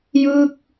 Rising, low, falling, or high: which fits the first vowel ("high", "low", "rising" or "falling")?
falling